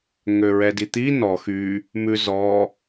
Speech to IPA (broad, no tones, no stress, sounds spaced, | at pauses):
ŋ ø ɹ ɛ d i t̪ i n ɔ x y | m ʉ z ɔ